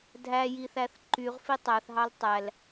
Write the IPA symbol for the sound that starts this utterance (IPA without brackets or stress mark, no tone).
dʱ